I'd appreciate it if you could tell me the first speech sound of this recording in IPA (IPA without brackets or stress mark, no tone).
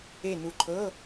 e